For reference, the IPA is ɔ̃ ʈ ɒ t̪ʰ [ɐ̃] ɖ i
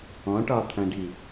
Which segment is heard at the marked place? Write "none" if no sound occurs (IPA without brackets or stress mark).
ɐ̃